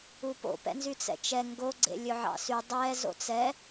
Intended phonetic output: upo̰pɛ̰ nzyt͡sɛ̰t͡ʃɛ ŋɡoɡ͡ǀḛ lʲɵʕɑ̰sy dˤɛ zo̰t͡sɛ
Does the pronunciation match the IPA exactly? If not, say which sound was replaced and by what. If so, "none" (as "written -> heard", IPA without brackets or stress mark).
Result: none